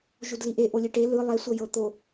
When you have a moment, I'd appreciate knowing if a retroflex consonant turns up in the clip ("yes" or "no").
yes